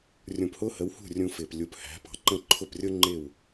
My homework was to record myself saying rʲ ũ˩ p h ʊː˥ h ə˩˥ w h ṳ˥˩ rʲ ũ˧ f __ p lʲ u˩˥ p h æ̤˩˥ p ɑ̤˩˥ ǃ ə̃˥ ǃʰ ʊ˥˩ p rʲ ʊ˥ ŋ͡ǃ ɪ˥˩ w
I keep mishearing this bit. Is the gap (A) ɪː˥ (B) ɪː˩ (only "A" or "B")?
B